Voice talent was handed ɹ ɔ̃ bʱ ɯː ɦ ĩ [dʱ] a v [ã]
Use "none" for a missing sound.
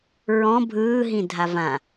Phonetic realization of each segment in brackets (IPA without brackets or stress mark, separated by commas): dʱ, ã